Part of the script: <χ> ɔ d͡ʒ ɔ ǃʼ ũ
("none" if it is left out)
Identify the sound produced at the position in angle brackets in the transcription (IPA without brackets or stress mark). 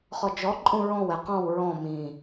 χ